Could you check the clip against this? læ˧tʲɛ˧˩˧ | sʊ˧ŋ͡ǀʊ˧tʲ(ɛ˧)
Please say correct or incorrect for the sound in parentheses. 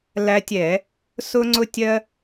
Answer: incorrect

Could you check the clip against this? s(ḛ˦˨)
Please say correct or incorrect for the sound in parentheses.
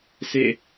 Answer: correct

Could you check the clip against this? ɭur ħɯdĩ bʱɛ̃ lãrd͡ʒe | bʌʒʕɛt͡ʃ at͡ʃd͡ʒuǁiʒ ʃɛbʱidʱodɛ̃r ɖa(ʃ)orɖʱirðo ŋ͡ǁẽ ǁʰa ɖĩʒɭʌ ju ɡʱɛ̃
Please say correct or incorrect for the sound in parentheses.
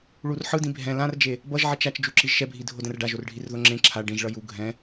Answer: incorrect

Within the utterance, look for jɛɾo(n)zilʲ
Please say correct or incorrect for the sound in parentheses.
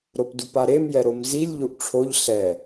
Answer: incorrect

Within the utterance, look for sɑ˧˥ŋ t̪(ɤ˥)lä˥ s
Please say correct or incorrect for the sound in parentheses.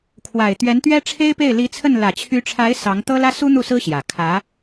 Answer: correct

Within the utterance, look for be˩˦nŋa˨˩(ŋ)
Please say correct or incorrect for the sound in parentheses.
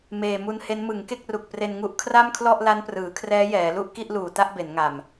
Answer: incorrect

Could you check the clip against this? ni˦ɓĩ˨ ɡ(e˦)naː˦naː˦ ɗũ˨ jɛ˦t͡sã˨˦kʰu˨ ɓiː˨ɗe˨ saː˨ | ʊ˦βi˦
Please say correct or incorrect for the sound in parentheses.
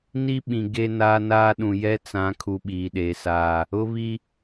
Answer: correct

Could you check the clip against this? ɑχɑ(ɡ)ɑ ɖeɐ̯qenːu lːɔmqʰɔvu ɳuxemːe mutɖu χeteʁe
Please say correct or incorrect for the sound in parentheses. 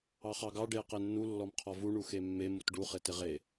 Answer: correct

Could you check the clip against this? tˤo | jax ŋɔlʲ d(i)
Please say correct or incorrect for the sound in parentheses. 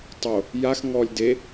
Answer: incorrect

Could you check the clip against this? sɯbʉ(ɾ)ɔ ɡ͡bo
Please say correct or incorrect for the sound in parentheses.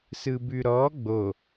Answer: correct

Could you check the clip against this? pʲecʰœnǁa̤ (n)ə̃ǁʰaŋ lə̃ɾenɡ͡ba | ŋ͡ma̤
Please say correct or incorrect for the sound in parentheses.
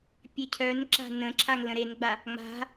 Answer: correct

